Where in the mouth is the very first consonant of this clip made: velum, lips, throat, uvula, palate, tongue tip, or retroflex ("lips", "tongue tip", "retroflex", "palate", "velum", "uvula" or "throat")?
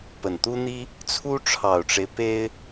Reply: lips